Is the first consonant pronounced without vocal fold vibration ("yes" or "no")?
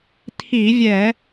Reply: yes